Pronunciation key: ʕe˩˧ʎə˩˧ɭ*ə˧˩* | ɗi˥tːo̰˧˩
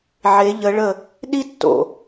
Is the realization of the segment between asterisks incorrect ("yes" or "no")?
no